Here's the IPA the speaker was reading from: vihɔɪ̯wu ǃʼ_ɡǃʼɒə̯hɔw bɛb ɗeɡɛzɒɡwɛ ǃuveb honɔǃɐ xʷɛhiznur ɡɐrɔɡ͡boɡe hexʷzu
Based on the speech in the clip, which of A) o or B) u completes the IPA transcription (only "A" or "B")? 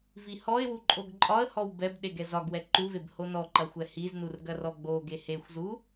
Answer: A